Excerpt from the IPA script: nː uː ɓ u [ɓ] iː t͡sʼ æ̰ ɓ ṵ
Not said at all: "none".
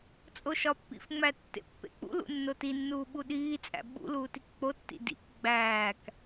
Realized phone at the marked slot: ɗ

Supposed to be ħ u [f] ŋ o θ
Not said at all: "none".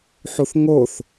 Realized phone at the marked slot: θ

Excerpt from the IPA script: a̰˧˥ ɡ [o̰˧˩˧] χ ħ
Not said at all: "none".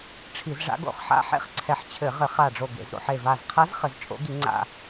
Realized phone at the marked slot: o̰˧˩˧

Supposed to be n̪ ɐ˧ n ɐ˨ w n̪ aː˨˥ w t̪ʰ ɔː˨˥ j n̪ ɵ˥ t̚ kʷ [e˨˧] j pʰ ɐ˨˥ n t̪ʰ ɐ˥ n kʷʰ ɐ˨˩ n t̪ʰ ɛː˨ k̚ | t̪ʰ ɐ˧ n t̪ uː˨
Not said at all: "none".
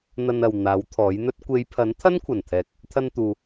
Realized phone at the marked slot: e˨˧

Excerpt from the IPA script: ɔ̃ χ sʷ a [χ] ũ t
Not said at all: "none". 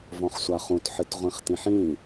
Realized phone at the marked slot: χ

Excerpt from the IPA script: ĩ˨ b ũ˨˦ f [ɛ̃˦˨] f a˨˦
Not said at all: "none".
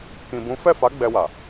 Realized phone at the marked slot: ɛ˦˨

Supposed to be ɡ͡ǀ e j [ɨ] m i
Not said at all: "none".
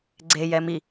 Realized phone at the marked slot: ɛ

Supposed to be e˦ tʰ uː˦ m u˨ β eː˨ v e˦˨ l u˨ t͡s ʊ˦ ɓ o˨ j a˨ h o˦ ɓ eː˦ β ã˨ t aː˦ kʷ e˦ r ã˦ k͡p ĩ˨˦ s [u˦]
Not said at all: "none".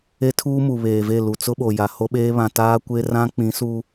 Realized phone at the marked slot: u˦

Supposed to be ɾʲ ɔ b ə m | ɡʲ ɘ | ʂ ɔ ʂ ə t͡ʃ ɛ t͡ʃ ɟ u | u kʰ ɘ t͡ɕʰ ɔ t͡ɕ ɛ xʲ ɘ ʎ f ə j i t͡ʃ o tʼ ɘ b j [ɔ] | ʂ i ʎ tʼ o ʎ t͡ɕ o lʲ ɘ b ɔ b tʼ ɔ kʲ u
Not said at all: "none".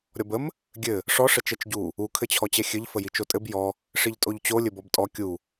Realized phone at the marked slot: ɔ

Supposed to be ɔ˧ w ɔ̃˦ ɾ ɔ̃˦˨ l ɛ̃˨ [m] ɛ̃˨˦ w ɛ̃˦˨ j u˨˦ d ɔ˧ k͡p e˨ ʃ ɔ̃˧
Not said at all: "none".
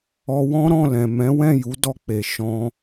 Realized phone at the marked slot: m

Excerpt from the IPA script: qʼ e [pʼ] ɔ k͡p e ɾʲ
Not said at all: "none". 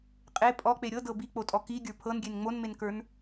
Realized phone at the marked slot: pʼ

